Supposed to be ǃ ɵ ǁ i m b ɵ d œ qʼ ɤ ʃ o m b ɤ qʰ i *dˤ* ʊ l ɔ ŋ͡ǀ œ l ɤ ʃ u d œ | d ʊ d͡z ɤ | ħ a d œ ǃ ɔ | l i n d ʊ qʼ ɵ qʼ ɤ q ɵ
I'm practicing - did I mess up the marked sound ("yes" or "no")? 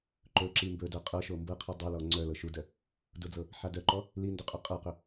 no